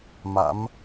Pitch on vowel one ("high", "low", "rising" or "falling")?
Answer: rising